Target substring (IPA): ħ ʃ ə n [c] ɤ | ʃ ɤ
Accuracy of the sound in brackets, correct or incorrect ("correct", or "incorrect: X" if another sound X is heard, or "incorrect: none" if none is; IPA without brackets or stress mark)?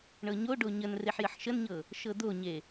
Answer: incorrect: ɲ